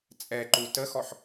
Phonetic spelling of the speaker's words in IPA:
t͡sʼ ɛ ǃ u t ə x ɔ ħ

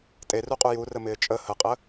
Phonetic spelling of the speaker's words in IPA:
tʼ e r u qʼ u j u r ə m ɪː t͡ʃʼ ə h ə qʼ ə

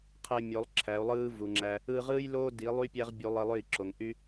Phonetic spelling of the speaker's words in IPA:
qʰ e˧ mʲ o˨˦ lˠ ǁʰ æ˨˦ u̯ lˠ ɯː˦ v u˨ ŋ͡ǁ æ˧ | ɯ˧ ʁ ɯː˦ j l oː˦ d i˨˦ lˠ y˦ pʲ æ˦ ʁ bʲ u˧ lˠ i˧ lˠ ø˦˨ i̯ ǁ o˨ ŋ ʔ y˦

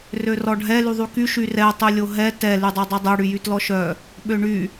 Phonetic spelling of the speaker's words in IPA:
r ø r ɔ ɖʱ ɛ l y ðˤ y k y ʃ y r ɛ tˤ y lʲ o ɦ ɛ t ɛ l y dˤ o dˤ œ dˤ ɛ ɽ y j y t l ɔ ʃ œ | ɓ ø ɳ y

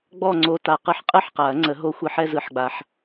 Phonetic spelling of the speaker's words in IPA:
ɡ͡b ɔ˥˧ ŋ͡ǀ o˧˥ t a˨ q ɯ˧˥ ħ qʼ ɯ˥˧ ħ q a˨˩˦ ɐ̯ ŋ͡ǀ ə˨˩˦ ɦ o˧˥ xʷ ɯ˨˩˦ ħ ɛ˥˧ z ɯ˨˩˦ ħ ɡ͡b a˨ ħ

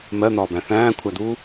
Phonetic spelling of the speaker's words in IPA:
m ɜ n̪ ɒː b æ̃ θ æ̃ː kʷʰ æ d̪ uː

